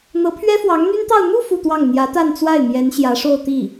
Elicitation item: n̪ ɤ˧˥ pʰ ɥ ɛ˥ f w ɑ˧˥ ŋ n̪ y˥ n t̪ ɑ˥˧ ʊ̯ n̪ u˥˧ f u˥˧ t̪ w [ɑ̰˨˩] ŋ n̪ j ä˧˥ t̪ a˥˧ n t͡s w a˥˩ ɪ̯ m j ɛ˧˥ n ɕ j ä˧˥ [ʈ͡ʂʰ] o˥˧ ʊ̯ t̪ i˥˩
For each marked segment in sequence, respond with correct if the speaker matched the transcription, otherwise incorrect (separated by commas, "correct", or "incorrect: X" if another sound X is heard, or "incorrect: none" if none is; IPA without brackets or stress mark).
incorrect: ɑ˥˩, incorrect: ʂ